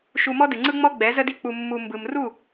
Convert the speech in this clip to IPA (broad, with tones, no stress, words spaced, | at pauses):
ʃu˧mɔ˦dɨ˨ŋ͡ǀɯ˦ ŋ͡mɔ˧ ɡ͡bɛ˨˦ zə˦di˦k͡pu˧mːu˧ mbɯ˨mru˦˨